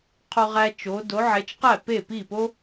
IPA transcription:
qʰo˥ʁæ˥ t͡ʃo˨˦ do˨˦ʕe˨˦t͡ʃqæ˥˩ pe˥˩pi˥˩po˥

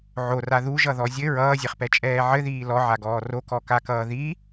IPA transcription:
ʕora ðuʒʌðɔ zʲɘ ɹʌːzʲɛχpɛt͡ʃʼɛː ʕɘðiː lɔʕaɡɔː rokɔkakʌː ði

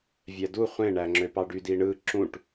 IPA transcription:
vʲædu χʷẽɳæŋ͡ǁøpɑ ɖydiɳɯ ǁũʈ

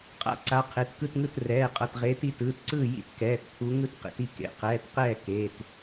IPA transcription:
qʼa̰˥˨ǀa˨˦ qʰe˩˧˩tkɯ˥˨tŋɯ˥˨t rɛː˩˧˩qʼʌ˩˧˩tʁeː˨˦t i˨˦tɯː˩˧˩tǀɯː˥˨ jḭ˥t kɛː˩˧˩tpʰu˨˦ ŋɯ˥˨tqḛ˨˦ti˥˨ kḛ˨˦ qɛː˩˧˩tqɛː˥˨ keː˩˧˩t

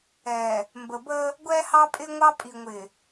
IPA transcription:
ɛ˨ | mbə˨bə˦ | ɡʷɛ˦hɑ˦pʼɪ˦ŋʷɑ˦ pʼi˨ŋʷɪ˨

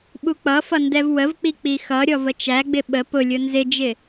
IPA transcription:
ɓuk͡pʌfʌ ndɛvwəvk͡pi k͡pixʌɾʲɔv ət͡ʃæɡ͡bɪ ɓə pʊlʲʊ nzɪd͡ʒɪ

